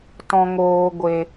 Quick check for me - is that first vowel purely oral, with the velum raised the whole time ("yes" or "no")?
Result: no